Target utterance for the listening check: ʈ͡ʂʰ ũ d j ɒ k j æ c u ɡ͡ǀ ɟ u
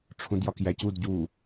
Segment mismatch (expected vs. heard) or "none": ɡ͡ǀ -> d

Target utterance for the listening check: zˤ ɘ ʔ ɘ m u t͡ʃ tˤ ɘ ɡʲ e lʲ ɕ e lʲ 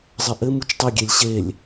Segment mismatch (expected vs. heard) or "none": none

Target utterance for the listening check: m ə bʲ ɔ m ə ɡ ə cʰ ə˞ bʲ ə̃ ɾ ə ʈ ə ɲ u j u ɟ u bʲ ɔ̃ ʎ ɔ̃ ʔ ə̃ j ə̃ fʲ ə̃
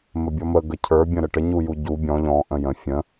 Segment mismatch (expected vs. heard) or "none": none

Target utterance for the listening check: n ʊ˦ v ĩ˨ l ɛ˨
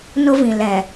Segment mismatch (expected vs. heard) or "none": none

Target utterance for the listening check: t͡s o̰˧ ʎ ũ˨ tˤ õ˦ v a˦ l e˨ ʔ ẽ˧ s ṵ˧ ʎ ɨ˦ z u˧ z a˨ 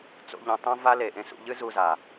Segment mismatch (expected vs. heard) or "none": none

